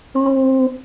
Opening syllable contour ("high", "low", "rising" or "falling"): high